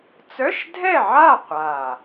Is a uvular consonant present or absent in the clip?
present